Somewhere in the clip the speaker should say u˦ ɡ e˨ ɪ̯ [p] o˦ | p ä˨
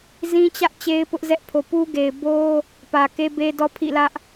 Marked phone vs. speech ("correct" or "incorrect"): incorrect